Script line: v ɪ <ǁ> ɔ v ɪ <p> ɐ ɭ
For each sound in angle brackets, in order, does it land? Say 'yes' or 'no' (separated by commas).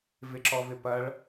yes, yes